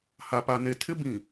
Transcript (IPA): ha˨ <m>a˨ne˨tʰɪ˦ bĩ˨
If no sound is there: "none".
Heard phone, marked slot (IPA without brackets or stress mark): p